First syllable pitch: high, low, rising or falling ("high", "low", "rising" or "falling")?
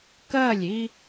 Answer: falling